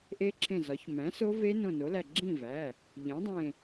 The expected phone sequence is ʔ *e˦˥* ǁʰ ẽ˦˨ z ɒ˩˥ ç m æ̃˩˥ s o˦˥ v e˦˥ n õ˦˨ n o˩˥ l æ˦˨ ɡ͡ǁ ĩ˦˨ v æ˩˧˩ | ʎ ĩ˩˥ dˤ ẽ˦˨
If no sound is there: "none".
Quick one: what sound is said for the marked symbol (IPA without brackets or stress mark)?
e˦˥